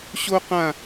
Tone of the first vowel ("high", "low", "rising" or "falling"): high